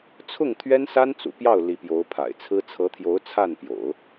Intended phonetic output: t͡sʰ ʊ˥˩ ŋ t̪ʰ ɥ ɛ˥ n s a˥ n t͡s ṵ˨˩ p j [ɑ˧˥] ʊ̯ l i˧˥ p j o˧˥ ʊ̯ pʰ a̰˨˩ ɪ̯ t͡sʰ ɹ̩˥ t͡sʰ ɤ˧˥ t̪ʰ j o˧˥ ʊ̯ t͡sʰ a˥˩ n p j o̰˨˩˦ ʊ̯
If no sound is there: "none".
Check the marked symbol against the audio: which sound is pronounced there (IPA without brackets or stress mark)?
ɑ˥˩